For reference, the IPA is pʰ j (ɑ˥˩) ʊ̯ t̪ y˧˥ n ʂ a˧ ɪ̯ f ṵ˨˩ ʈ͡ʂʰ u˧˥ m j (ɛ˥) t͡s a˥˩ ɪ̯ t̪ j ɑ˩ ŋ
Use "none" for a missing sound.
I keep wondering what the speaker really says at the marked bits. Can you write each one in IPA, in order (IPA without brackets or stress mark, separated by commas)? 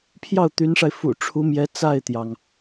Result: ɑ˥˩, ɛ˧˥